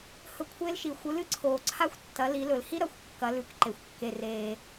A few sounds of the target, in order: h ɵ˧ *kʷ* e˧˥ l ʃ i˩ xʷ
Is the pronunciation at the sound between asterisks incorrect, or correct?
incorrect: kʷʰ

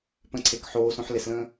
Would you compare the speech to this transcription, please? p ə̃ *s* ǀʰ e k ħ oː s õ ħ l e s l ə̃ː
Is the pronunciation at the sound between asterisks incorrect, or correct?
incorrect: none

